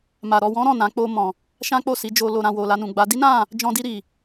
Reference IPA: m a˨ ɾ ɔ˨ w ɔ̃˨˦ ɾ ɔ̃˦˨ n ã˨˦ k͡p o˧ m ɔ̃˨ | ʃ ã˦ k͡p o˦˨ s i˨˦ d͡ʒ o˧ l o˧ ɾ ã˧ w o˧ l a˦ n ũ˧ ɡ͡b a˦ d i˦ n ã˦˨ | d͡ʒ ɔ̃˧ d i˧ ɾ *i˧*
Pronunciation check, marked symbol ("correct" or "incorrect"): incorrect